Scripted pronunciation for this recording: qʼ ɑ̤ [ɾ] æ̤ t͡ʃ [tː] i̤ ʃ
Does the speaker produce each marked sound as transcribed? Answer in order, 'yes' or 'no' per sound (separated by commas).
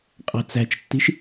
no, yes